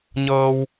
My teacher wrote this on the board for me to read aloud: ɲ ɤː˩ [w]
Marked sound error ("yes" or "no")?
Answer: no